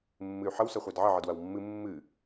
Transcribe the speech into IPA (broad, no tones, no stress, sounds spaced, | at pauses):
mː ɨ y̯ ħ ə w s ɐ χʷ æ d ʕ ə ʕ ə d w ɐ w mː ɨ mː ɨ